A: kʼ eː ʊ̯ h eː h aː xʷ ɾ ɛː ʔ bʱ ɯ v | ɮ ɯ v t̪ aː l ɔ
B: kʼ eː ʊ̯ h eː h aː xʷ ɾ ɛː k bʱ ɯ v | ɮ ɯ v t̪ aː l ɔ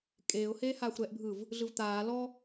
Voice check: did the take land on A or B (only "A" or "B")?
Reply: A